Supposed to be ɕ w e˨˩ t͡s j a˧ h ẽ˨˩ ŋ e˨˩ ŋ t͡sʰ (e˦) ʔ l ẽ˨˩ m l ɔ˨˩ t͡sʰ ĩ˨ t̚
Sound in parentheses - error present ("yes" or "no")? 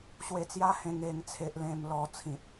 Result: yes